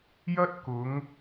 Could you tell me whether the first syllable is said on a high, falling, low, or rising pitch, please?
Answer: high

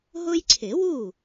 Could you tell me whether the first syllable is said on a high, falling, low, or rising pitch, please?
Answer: high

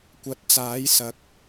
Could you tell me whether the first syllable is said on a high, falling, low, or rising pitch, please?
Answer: rising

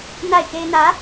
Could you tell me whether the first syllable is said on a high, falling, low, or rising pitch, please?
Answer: falling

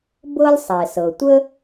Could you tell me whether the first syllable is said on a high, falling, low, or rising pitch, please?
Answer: high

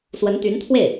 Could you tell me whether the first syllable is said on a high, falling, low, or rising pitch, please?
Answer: rising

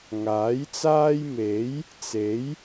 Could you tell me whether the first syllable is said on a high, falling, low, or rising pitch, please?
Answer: rising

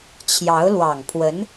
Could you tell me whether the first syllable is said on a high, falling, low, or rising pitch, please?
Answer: rising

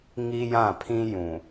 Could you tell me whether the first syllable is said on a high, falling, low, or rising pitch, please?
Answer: high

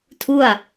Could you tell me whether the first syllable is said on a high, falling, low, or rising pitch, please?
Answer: falling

